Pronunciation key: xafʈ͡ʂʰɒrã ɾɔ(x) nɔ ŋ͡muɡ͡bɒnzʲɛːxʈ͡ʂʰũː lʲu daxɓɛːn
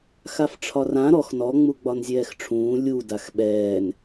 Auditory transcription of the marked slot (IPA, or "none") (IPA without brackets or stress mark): x